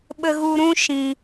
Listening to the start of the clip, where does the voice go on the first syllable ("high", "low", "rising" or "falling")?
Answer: low